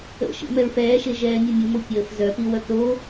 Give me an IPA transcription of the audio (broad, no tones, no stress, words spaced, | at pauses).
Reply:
ə̰ʃḭ mɛɹfɛːʃe ʒɛːmʲumʲumo pʲəːf zœpi wœkɾo